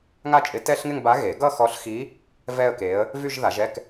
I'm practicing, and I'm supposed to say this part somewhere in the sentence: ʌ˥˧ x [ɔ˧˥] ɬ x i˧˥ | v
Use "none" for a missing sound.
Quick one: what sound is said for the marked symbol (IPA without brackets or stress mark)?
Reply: ɔ˧˥